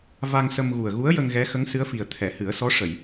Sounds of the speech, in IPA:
v a˧ ŋ s ə˧ m ɣ u˨˩ ə̯ ɣ u˧˥ ə̯ j ə˧ ŋ ɣ ɛ˧˥ x ə˧˥ ŋ s ɨ˧˥ ə̯ f i˨˩ ə̯ t̪ʰ ɛ˨˩˨ h ɨ˨˩˦ ə̯ s ɔ˧˥ ʂ ə˨˩˨ j

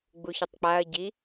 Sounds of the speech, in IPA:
ɡ͡b u ç ə tˤ k͡p a ɐ̯ ɟ i

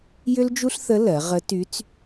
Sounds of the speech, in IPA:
j ʏ˥ l d͡ʒ u˥ ɬ θ ə˧˥ l ɜ˩˧ ʁ ə˧˥ t y˧˥ t͡s

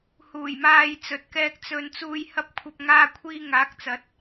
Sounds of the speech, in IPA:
h uː˨˩ j m aː˨ j t͡s ɵ˨ t̚ k ɛː˧ k̚ t͡s ɵ˨ n t͡s uː˨ j h ɐ˧ p̚ kʷʰ ɐ˧ p̚ ŋ aː˧ kʷʰ iː˧ ŋ aː˨˥ k̚ t͡s ɐ˨˥ t̚

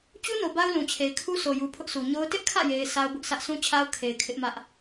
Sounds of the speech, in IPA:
t͡ɕ u˦ n o˨ b a˦ ʊ̯ l ũ˨ t͡ɕʰ e˨ ɪ̯ kʰ u˦ s o˨ j u˨ pʰ ʊ˦ ʔ sʰ u˨ ɲ o˦ ʊ̯ t ɪ˦ ʔ kʰ ä̰˦˨ j e˨ ɪ̯ s a˦ ʊ̯ b ʊ˦ ʔ sʰ ä˦ ʔ s ũ˦ t͡ɕʰ a˦ ʊ̯ kʰ e˨ ɪ̯ kʰ ɪ˦ ʔ m ä˦ ʔ

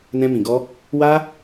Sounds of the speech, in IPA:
n ɛ̃˧ m ĩ˨ ɡ ɔ˧ | w a˧

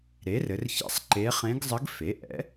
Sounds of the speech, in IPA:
ɾ e˩˥ r ɘ˩˧ r ç ɛ̰˧˥˧ sˤ ǃ e˧˥ χ ẽ˧˥ ɡ zˤ ɘ˧˥ ɡ f e˩˥ ʔ ɛ̰˩˥

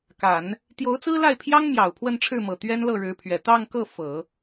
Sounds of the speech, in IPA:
k a˨˩˦ n | t̪ j o˧˥ ʊ̯ t͡s ɹ̩˥ l a˥˩ ɪ̯ pʰ j ɑ˥ ŋ m j ɑ˨˩ ʊ̯ pʰ w ə˥˧ n ʈ͡ʂʰ ɻ̩˥˩ m ɤ˨˩ t̪ ɥ ɛ˥ n l ɤ˥˩ ɻ ɻ̩˧˥ pʰ ɥ ɛ˨˩ t̪ ɑ˥˧ ŋ k ɤ˥˩ f ɤ˨˩˦

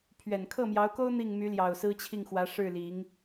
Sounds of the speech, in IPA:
pʰ ɥ ɛ˨˩ n kʰ ɤ˥˩ m j ɑ˧˥ ʊ̯ k o˥ ʊ̯ n̪ i˥˩ ŋ m y˧˥ l j ɑ˨˩ ʊ̯ s ɹ̩˥ t͡ɕʰ i˥˩ ŋ x w ä˧˥ ʂ ɻ̩˥˩ l i˧˥ ŋ

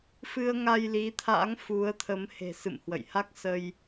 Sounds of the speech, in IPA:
f ɨ˧ ə̯ ŋ a˧ j l i˨˦ t̪ʰ a̰˧˥ ŋ f u˨˦ ə̯ t̪ʰ ə˨˦ m h e̤˨˩ s ɨ̰˧˨ m h w ə̰˧˨ j h a˦˥ k̚ s ə˧ j

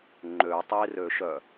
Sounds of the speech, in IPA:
ŋ͡ǃ ø tˤ i r ø ʃ œ

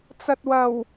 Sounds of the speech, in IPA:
t͡s ɐ˨ t̚ w ɐ˨˩ w

